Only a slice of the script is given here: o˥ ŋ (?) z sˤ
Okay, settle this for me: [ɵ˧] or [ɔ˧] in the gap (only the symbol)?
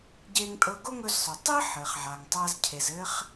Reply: ɵ˧